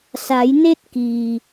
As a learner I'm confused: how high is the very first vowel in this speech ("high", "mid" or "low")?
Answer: low